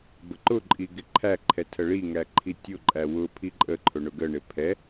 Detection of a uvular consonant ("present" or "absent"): absent